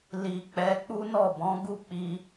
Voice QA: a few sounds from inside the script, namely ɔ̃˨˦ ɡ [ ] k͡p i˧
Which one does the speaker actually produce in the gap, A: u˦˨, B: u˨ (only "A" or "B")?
A